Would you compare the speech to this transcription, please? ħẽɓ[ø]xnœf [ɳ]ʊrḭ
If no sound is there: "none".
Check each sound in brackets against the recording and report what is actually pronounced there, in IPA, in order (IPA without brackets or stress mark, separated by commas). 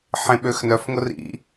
ø, ŋ